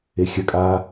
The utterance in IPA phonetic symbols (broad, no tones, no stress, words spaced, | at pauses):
exʲɐkʼaː